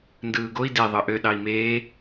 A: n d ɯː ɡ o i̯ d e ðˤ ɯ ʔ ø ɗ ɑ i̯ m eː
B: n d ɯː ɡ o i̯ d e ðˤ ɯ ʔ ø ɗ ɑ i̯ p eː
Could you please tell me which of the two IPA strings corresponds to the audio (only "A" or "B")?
A